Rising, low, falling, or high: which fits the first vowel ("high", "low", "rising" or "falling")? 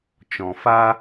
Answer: low